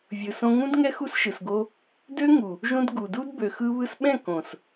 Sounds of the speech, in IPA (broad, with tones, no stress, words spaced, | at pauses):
vʲɯ˨sõ˧ŋũ˦dŋɛ˦ xu˦sʃɯ˨sɡo˦ | dø˦ŋu˨ | ʒũ˧d ɡu˨du˦d bø˨xɯ˧βɯ˧sɓɛ̃˦˨ kõ˨s